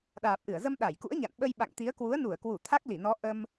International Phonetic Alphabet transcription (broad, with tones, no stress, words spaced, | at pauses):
ɗaː˨˩p̚ʔɨ˧˩ə̯zə˧m ɗa˧˩jkṵ˧˥ə̯ɲa̰˧˨nɓə˧j ɓa̰˧˨ŋt̪i˨˦ə̯ kwu˨˦ə̯nu˧˩ə̯kwu˧˩ t̪ʰa˦˥k̚li˧˩nɔ˨˦ ʔə˧m